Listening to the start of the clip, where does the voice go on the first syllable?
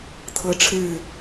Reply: high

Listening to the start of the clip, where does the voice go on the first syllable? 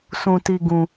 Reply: low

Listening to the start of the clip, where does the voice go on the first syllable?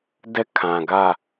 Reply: falling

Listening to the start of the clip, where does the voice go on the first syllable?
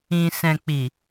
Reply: low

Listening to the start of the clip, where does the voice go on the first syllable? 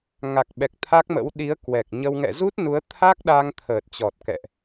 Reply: low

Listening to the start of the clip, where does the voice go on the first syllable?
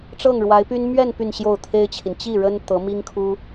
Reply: falling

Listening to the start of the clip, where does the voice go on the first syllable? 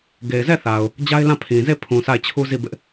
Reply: low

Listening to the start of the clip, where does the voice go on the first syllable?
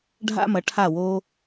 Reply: high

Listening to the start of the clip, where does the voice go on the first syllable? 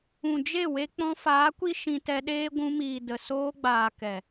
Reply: low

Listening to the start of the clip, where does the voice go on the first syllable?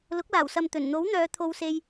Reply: rising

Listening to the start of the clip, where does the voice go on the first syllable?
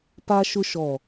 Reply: high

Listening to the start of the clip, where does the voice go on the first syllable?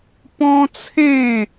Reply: high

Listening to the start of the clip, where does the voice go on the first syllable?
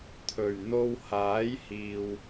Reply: low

